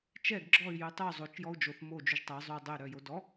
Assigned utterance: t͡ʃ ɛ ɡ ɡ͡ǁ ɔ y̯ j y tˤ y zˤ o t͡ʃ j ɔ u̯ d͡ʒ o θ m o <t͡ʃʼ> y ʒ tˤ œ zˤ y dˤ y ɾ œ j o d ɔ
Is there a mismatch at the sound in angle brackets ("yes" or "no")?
yes